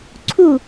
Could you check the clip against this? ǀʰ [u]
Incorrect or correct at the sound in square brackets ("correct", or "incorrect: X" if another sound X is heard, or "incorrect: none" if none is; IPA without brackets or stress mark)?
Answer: correct